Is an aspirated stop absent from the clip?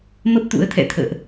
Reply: no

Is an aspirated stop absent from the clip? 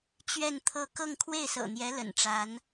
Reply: no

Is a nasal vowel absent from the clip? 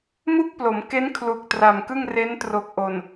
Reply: yes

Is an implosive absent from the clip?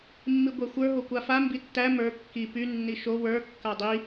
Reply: yes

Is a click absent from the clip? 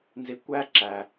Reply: no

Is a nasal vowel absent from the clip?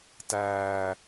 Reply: yes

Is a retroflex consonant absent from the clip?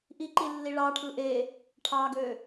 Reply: no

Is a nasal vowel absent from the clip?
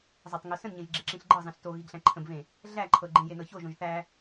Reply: no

